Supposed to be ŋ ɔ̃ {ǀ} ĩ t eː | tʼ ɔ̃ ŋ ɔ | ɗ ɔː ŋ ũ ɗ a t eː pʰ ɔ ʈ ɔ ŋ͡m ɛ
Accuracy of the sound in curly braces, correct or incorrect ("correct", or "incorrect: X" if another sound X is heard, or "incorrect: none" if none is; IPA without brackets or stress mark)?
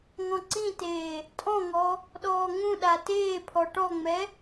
correct